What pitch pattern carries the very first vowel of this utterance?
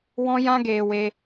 high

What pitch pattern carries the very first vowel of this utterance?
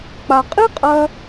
low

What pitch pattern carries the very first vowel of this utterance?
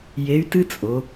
rising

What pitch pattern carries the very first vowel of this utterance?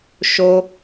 high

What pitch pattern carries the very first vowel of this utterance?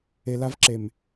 low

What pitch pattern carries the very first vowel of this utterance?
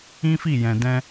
high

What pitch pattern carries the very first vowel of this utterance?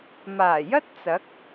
low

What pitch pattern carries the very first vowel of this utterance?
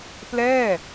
falling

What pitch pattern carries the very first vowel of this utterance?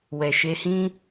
low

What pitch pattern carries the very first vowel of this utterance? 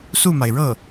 falling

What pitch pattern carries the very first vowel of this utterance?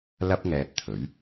high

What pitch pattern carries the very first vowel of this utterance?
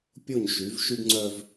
falling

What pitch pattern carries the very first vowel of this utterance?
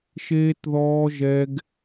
high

